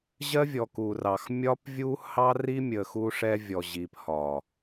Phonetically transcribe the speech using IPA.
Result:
ʑ ɜ˦ vʲ ɔ˨ k u˨ r ɑ˨ x mʲ ɒ˦ p vʲ u˦ h ɑ˦ r i˦ mʲ ə˨ x u˦ ʂ ɛ˦ vʲ ɔ˨ ʑ i˨ p h ɒ˨

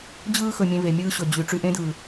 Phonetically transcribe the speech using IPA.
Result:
d͡ʑ ɯː˧ x ɵ˨ mʲ ẽ˧ v e˨ mʲ ɯː˧ ɕ ɵ˨ d͡ʑ y˨ ʈ͡ʂ y˧ ʔ ẽ˦ d ɯː˨

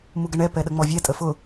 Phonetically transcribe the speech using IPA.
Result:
m u ɡ ə ɳ ɛ p ɛ ɗ ə ŋ͡m ɔ vʲ ɛ tʼ ə f ʊ

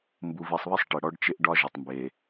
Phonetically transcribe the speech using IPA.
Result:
m b u˨ v i˨ sˤ β ɪ˦ sˤ ʈ ɪ˨ ɽ ɔ˦ ɖ t͡ʃ ɪ˦ ʔ ɖ ɒ˦ ʒ ɪ˨ tˤ m b e˨

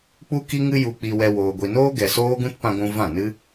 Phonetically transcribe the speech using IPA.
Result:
k͡p u˦ k i˦ ŋ ɨ˦ j u˧ k͡p i˧ w ɛ˧ w oː˨ ɡʷ i˨ n oː˦ ɡ ɛ˨ s oː˦ ɡ ũ˦ t p ã˧ ɡʷ ũ˧ v ã˦˨ n ɨ˦

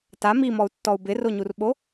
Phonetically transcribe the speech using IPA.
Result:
t a m i m ɔ u̯ tː ɔ u̯ b ɪ r o ɲ u r ɓ o

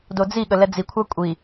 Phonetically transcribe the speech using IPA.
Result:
d o d͡z i ɠ ə l ɛ d͡z i kʷʰ a kʷʼ i

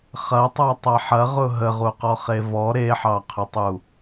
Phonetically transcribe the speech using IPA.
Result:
χ ɐ tˤ a tˤ a ħ ɐ ʁ ʊ ɦ ə ʁ u q ɔ χ e v ɔ ɾ e ħ ɑ qʰ ʊ tˤ u

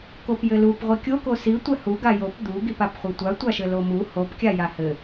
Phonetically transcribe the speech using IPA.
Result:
k o p j ɘ l u p ʁʷ i kʲ o k o s i tʷ ɛ h u ɡ a j o p d̪ u ɡ i p a p χʷ i tʷ a tʷ a ʃ ɘ l o m u h o p kʲ a j a h ɘ

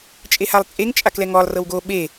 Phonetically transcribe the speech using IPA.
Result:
t͡ʃʼ e h a lˠ t͡sʼ e ŋ t͡ʃʼ a k l ɛ ŋ ɔ lˠ r ɤ w ɡ o ɓ e

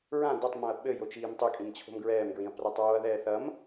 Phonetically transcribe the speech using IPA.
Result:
ɹ ã d ɔ tˤ m õ ɐ̯ ɓ ɘ j o t͡ʃ iː m tˤ ɘ kʼ ĩ m t͡ɕʰ o̤ m ɡ ɹ ɛː m ɡ ɹ ĩ ɐ̯ p r a tˤ ɹ o ɐ̯ ð ɛː θ ɐ m

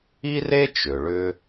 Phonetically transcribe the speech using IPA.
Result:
i˥ r e˥ t͡ʃ ʏ˩ ɭ ʏ˧

